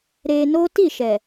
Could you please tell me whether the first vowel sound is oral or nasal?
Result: oral